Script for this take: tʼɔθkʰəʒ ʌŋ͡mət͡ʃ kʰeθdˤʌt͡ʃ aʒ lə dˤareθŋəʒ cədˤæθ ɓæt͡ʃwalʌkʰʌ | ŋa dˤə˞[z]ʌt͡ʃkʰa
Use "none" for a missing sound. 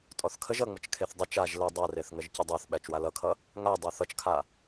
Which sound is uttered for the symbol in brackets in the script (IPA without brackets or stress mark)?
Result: θ